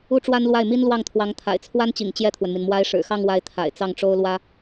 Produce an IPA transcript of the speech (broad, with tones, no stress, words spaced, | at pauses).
u˥ʈ͡ʂwa˥nlwa˥˩ɪ̯ mi˥nlwɑ˥˩ŋt̪ʰwɑ˧˥ŋ t̪ʰa̰˨˩ɪ̯t͡sʰwa˥nt͡ɕḭ˨˩ŋ t͡ɕjɛ˥˩t̪ʰwə˩nmi˩n mwa˧˥ɪ̯ʂɻ̩˨˩xɑ˥˧ŋ wa˥˩ɪ̯t̪ʰa̰˨˩ɪ̯t͡sɑ˥˩ŋ ʈ͡ʂo˥ʊ̯lwä˥